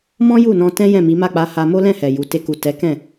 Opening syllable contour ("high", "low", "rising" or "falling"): high